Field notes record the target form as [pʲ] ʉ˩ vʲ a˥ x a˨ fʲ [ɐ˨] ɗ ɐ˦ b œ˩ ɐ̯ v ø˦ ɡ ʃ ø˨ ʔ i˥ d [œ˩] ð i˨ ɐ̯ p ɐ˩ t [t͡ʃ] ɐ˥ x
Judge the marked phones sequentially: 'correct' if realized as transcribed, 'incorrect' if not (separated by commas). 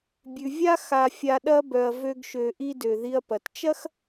incorrect, incorrect, incorrect, correct